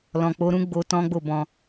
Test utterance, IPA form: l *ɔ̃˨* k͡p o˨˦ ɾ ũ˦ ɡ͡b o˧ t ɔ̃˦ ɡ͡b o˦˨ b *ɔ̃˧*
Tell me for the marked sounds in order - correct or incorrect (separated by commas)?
correct, correct